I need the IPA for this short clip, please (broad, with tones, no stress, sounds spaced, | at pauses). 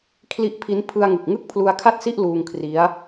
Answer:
kʰ l i˦˥ ʔ pʰ i˦˥ n pʰ ɯ˧ a̯ ŋ ɯ˨˩ k̚ ŋ ɯ˥˩ k̚ pʰ l u˧ a̯ kʰ a˥˩ t̚ s i˥˩ ʔ l uː˧ ŋ kʰ r i˦˥ a̯